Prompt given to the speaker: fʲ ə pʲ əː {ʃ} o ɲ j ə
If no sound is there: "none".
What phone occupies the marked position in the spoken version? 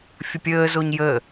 z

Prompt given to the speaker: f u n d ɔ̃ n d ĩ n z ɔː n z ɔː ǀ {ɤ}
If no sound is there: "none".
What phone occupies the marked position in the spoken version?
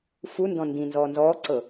ɤ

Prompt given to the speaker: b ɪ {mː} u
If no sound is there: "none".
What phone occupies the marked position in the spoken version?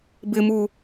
m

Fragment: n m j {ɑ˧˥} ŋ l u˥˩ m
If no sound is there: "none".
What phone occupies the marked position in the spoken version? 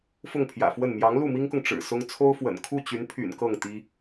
ɑ˧˥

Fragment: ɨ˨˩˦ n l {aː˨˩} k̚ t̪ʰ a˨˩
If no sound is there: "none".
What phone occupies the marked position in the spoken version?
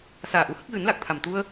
a˨˩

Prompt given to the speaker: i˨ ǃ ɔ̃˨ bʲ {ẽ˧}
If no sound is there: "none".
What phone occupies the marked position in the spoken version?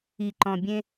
ẽ˧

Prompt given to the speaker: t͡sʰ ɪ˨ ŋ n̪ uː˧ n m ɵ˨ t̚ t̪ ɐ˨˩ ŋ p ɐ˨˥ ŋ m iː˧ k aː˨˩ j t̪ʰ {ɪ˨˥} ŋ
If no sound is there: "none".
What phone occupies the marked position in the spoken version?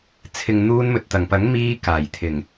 ɪ˨˩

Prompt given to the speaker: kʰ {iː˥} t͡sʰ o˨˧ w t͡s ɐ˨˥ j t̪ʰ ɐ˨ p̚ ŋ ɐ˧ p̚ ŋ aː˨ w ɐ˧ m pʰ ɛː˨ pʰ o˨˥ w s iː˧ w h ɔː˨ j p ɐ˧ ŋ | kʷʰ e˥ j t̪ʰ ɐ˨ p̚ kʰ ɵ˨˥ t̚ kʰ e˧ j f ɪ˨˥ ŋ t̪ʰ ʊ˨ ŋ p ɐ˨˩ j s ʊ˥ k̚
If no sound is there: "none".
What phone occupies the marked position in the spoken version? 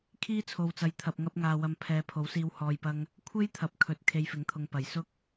iː˥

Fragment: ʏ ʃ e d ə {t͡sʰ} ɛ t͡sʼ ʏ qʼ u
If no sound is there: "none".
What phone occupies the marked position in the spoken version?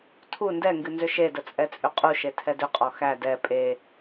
t͡sʼ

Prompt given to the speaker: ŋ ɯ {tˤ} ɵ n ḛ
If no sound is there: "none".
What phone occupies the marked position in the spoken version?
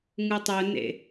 tˤ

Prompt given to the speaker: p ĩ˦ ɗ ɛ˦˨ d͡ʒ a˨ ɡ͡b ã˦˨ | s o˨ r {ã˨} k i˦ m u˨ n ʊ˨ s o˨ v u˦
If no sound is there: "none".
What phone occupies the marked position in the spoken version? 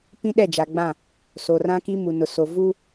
ã˦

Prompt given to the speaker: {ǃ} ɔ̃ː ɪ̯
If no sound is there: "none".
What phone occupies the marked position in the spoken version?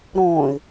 ɾ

